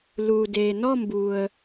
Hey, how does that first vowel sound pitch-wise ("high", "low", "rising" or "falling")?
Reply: low